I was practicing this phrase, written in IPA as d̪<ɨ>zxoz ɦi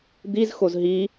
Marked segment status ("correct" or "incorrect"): incorrect